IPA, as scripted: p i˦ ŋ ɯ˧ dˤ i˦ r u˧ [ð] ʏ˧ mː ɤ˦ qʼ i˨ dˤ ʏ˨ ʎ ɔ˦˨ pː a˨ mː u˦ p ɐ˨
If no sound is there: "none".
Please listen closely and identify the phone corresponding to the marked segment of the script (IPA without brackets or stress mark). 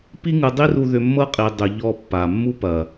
ð